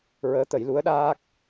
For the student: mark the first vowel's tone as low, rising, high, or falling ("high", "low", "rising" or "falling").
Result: rising